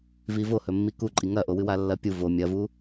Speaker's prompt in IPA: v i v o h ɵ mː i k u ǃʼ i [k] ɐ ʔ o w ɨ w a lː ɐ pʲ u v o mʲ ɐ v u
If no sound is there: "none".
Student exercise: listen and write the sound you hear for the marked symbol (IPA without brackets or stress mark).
ŋ